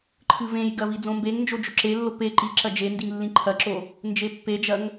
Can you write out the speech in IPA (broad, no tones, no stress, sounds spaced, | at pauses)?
ǃʰ ɨ v ẽ j ɡ ɐ v i d͡z õ m b e ŋ n d͡ʒ o d͡ʒ o ǁ e lː o p e ǃ i ǁ ɐ d͡ʒ e n d i ŋ lː ĩ ǃʰ ɐ ǁ o | n d͡ʒ e pː e d͡ʒ ɐ ŋ